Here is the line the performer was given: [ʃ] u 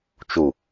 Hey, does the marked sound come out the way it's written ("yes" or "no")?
no